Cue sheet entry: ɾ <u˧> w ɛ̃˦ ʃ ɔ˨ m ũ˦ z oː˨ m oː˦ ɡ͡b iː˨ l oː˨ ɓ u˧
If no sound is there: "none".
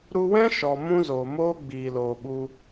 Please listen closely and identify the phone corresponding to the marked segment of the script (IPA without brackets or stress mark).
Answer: u˧